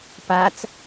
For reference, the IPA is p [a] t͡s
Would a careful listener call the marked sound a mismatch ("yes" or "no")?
no